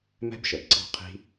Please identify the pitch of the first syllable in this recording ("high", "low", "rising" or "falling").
high